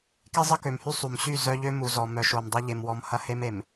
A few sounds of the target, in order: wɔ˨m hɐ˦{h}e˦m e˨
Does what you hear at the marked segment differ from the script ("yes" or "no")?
no